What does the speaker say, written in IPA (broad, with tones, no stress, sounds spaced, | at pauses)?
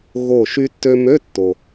ɣ o˧˩ ʃ y˧ tː ø˧ m ø˧˥˧ tː o˩